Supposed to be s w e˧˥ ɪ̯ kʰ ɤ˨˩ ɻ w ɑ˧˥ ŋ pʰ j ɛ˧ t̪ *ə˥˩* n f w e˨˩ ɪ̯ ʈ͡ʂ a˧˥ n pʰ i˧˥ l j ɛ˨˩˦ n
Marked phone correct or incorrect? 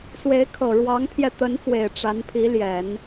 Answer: incorrect